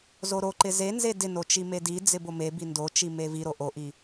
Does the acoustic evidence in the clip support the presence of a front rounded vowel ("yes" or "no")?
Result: no